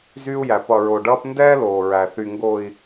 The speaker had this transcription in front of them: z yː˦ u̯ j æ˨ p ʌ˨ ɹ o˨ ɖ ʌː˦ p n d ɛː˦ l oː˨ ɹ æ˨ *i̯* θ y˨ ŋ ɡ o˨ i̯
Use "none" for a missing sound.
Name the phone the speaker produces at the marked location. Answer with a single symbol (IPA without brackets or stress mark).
none